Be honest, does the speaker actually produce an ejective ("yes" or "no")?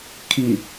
no